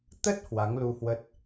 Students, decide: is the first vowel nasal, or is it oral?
oral